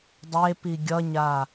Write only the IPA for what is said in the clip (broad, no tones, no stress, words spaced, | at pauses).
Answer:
dˤepi ɡʲʌɲa